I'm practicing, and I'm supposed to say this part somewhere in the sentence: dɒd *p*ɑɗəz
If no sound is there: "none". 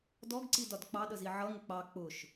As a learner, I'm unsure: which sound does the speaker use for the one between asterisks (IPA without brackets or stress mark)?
k͡p